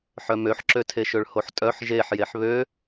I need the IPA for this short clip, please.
ħ œ m ø ħ ǁ ø tʰ e ʃ ø ɭ h o ħ tʼ œ ħ ʒ e ħ j e ħ β ø

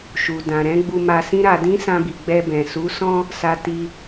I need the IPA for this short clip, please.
ʃ u˨ d ã˨ ɾ ɛ̃˨˦ ɡ͡b u˧ m a˧ s ĩ˦ ɾ a˧ d ĩ˦ s ã˧ b i˨ ɡ͡b ɛ˧ b ɛ̃˨ s u˨˦ s ɔ̃˦ | s a˧ t i˧

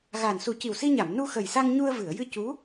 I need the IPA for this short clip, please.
ɣ aː˨˩ n s u˨˩˦ c i˨˩ w s i˧ ɲ a˨˩˨ m n u˧ x ə˨˩ j s a˧ ŋ ɲ u˧ ə̯ v ɨ˨˩˨ ə̯ j ɨ˧ c u˧˥

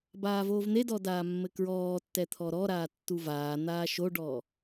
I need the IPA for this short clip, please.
b aː v oː v n̪ e d ɔ d aː mː ɘ k ɹ ɔː tː ɛ t̪ʰ ɔ ɾ ɔ ɾ aː tː u v aː n̪ aː ʃ o ɖ ɔː

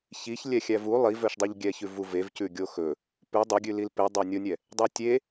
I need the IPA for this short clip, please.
ç i ç lʲ ɛ xʲ æ v u lˠ i v œ ʃ dˤ y ʎ ɡʲ ɛ ç ʉ v u v e v c ʉ ɡʲ o x ɵ | p ʉ dˤ ɵ ɡʲ ʉ l i l p e dˤ ɑ nʲ o nʲ ɛ | dˤ e tʲ e

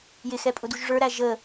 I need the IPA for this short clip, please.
j ɪ x ɛ pʼ ʊ d u ʒ ʐ ə˞ ɾ æ ʒ ə

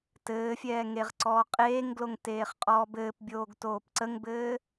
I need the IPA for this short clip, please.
t ɘː fʲ ɛː ŋ e ʁ ǀ ɔː qʼ eː ŋ ɡ l o ŋ t eː χ qʼ ɔː b ɘː p bʲ oː ɡ t oː p ǀ ə ŋ b ɘː

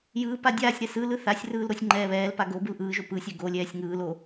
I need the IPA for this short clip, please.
j ɯː p a dʲ aː sʲ ɾ ɛ s ɯ l ɯ θ a sʲ r ɯː l ɾ o sʲ ŋ͡ǃ ɛː β ɛː l p a ɡ o b ɯ l ʔ ɯː ʒ o p ɯ sʲ ɛ ɡ o lʲ ɛː sʲ ŋ ɯː l o

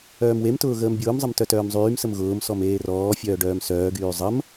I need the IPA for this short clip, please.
œː m w e m t ʊː ɣ əː m bʲ ʊː m zˤ ə m t œ t œː m zˤ yː m s ə m ɣ ʊː m s ɔ m eː r ɔː fʲ œː ɖ œː m s œː ɡ yː zˤ ə m

